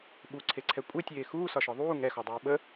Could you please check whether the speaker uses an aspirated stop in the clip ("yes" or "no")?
yes